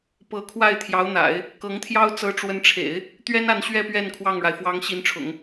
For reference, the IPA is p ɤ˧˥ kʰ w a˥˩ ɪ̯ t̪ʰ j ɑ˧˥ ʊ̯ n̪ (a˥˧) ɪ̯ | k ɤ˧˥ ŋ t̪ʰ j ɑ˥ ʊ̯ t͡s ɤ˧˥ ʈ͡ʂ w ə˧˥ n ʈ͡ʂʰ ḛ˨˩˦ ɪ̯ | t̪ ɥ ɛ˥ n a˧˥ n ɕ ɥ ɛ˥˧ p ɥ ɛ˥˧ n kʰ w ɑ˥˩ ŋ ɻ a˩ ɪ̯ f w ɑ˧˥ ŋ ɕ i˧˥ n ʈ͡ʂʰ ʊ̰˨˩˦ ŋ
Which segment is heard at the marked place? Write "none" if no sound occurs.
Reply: a̰˨˩˦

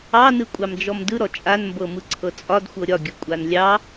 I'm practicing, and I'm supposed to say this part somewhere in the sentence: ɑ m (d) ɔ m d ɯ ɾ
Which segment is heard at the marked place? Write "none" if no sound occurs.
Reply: d͡ʒ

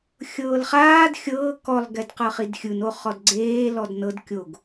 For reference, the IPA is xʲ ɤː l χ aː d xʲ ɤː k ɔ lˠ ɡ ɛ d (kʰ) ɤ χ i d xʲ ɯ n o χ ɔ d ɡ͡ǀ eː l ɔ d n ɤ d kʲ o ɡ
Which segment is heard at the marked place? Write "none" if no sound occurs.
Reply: q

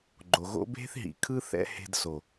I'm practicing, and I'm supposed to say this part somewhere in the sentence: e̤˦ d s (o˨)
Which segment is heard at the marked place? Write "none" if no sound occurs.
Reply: o˨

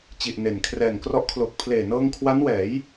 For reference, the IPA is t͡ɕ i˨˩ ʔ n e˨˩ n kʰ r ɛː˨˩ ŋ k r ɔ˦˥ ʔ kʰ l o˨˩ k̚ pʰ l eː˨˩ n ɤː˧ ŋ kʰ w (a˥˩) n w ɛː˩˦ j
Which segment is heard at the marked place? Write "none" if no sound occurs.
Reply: a˦˥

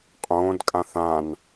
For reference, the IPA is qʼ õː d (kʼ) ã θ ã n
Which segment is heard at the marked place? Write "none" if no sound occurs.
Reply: kʼ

